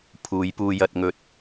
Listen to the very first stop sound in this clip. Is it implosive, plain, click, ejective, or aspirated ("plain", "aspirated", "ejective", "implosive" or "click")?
aspirated